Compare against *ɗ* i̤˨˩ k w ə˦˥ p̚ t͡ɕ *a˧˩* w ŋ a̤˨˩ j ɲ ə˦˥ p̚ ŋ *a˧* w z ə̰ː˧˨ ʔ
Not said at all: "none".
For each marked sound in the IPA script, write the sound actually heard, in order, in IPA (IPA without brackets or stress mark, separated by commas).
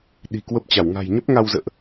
ɗ, a˧˩, a˧